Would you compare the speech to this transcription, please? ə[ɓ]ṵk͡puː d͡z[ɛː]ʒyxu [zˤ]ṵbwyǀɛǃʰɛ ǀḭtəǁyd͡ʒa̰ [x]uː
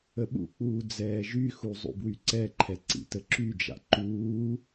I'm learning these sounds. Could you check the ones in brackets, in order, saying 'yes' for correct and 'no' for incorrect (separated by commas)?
yes, yes, yes, no